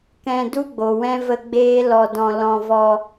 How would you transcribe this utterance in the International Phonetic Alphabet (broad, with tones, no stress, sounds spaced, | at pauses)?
k ɛ̃˧ d u˦ ɡ͡b o˨ w ɛ̃˦ v ə˧ ɡ͡b eː˦ l ɔ˧ d ɔ̃˧ l ɔ̃˧ v ɔ˧